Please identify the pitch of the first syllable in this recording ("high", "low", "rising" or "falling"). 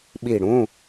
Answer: falling